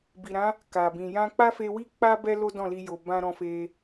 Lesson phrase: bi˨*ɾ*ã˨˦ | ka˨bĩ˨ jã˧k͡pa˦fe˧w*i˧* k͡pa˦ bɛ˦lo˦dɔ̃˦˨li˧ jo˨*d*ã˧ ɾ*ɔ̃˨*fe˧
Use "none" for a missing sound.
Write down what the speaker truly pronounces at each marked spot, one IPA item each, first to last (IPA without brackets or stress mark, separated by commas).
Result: ɾ, i˦, b, ɔ̃˧